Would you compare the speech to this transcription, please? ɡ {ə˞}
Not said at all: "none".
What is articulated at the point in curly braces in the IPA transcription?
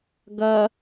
ɐ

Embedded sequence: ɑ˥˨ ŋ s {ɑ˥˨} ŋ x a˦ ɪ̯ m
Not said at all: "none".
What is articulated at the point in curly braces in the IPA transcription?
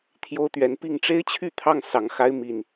ɑ˨˦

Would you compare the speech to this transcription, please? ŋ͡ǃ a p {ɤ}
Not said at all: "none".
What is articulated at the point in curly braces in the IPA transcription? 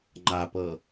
ɤ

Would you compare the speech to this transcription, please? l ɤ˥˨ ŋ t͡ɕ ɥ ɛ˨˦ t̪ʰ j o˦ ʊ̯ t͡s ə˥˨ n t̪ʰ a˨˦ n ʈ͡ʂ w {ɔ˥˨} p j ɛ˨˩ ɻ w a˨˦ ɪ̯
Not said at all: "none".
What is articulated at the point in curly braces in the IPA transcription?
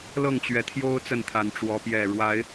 ɔ˨˦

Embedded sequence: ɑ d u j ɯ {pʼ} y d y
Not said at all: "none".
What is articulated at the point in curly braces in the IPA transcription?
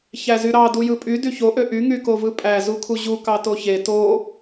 pʼ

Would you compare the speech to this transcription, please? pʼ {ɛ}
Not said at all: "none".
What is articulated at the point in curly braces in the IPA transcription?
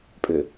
ʏ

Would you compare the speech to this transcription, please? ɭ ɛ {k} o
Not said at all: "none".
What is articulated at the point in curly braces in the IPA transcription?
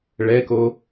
k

